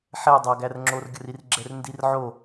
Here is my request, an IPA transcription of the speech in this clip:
ħ ɛ dˤ a ɡ æ r ŋ͡ǁ o r ɡʲ ə r i r ɡ͡ǁ ɛ r n d i r ʕ o

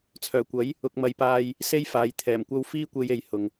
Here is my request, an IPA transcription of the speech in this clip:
t͡sʰ œː˨˩ kʷ ɐ˨˥ j | ʊ˨ k̚ m ɐ˨ j p aː˧ j | s e˥ j f aː˨˧ j t̪ʰ ɛː˨˩ m kʷ ɐ˥ w f iː˥ kʷ e˧ j e˨ j h ʊ˨ ŋ

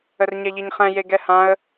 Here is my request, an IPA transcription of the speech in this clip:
ə r ɲ ɛ ʎ i ɲ χ ɛ̃ j e ɡ ɛ h ã ə̯

